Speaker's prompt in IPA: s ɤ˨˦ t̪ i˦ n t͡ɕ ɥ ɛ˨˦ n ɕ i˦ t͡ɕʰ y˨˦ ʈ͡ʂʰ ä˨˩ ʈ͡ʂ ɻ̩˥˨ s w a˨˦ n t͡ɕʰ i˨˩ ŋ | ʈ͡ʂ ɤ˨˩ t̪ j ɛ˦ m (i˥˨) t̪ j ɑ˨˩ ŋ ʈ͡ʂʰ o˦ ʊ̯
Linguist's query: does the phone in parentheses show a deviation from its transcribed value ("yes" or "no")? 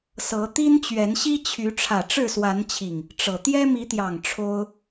yes